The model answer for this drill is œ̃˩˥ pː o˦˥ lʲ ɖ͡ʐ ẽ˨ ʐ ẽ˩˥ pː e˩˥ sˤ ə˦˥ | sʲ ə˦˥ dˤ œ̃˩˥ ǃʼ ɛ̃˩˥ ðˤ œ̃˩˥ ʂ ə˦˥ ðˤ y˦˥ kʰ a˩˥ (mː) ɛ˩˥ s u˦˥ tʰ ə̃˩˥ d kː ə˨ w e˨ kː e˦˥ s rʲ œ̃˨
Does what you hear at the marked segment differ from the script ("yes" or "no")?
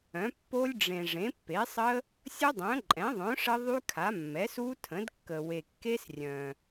no